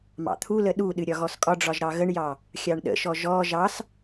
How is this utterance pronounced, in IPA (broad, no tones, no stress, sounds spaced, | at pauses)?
m ɑ̰ t̪ʰ u l ə ɗ u ɗ ɨ ɾʲ ɒ ɣ ɔ s kʼ ɒ ɖ͡ʐ ɒ ʒ ɾ ɑ ɣ ə ɳ j ɑ | xʲ ɑ ɳ ɗ ə̰ ʃ ɔ ʒ ɔ ʒ ɑ s